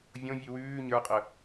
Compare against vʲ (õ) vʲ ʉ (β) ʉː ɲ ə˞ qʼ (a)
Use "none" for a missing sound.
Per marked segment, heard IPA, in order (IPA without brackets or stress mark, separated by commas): õ, w, ə